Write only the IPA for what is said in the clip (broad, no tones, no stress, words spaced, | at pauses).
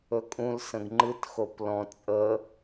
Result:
ɵkʼũl sə̃ɡŋ͡ǃɨt xoplɔ̃ t͡sʼə